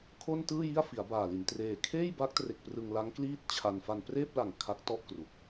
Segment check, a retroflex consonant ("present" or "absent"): absent